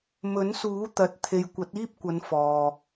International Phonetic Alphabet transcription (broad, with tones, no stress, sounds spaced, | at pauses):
m ɵ˨˥ n s uː˨˥ t̪ ɐ˨ t̚ t̪ʰ e˨ j kʷ ɐ˨˥ t̚ iː˥ p̚ kʷ ɐ˨˧ n f ɔː˨